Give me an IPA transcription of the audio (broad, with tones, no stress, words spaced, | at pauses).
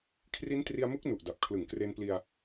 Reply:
kʰri˦˥ntri˧a̯mu˦˥k̚ nu˨˩ʔda˨˩p̚ kʰlɯ˨˩ŋkre˧npli˧a̯